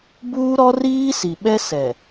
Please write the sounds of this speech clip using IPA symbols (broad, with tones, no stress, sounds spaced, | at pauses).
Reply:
b uː˦ ɾ ɔ˦ r iː˦ s i˨ ɓ ɛ˦ s ɛ˨